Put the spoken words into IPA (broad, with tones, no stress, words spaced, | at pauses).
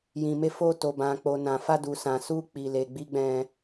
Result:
jĩ˨me˧fo˧ to˨bã˨ k͡po˨nã˨ fa˧ du˨sã˨ su˧k͡pi˨le˨ ɡ͡bi˧ɡ͡bɛ̃˧